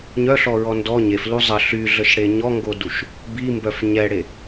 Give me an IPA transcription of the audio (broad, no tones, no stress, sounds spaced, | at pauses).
ɲ œ ɬ ɔ ɹ ɔ n d ɔ ɲ e f l u zˤ ə ɬ y ɮ ə ʃ ɽ e ɲ ɔ ŋ ɡ o d u ʃ | b i m b œ f ɲ ɛ ɽ e